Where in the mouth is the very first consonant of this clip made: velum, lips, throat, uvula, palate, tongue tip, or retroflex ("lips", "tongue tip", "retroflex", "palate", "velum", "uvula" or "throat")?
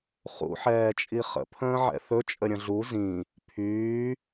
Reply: uvula